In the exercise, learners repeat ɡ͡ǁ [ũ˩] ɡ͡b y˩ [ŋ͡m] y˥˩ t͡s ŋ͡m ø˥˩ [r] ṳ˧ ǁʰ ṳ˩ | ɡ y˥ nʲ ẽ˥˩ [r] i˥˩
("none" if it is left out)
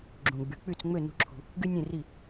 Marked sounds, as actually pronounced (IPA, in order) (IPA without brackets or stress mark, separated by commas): ũ˩, k͡p, n, r